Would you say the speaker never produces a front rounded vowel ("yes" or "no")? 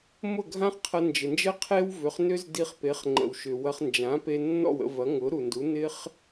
no